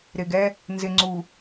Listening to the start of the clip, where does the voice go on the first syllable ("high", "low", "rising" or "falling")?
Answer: low